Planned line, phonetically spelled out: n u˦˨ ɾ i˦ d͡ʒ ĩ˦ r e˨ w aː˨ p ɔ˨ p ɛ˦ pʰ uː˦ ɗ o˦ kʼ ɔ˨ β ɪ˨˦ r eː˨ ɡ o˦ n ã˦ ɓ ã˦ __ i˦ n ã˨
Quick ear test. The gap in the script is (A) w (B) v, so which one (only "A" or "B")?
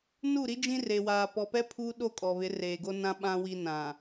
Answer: A